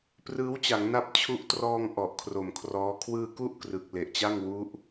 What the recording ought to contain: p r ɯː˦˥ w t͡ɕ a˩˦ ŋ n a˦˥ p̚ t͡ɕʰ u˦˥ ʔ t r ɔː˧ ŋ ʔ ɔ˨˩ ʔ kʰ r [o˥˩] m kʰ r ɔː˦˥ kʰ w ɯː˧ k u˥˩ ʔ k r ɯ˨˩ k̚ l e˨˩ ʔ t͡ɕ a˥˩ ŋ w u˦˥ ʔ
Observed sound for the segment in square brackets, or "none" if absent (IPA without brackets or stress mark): o˨˩